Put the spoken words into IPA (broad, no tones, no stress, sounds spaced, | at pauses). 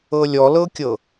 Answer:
ɤ lʲ ɔ l ɤ kʲ ɤ